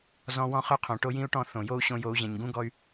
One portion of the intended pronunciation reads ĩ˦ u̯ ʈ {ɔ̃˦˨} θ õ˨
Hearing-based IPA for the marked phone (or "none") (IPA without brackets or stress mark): ɔ̃˦˨